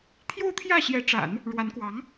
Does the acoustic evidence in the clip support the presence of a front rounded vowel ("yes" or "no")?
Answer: no